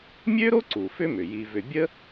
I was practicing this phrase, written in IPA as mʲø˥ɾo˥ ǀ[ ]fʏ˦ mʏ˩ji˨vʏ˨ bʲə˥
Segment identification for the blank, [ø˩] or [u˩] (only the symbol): u˩